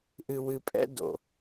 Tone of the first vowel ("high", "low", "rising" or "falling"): low